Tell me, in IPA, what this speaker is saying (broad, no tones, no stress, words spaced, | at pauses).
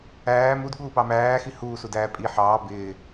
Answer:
æː mudɠuːpɑ mæːxi huːsudæː pʼi ħɑː bɪː